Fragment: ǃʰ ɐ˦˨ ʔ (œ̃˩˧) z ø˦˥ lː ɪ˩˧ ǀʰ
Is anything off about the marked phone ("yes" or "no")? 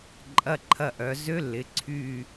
yes